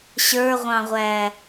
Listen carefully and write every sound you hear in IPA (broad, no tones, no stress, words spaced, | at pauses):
ɕə˞ʁʷɑ̃ʁʷæ